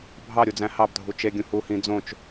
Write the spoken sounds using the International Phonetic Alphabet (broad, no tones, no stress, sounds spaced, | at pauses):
bʱ ɑ ɾʲ u d͡z æ̃ h ɑ b dʱ u t͡ʃ e ɡʲ ũ h u h ĩ d͡z õ t͡ʃ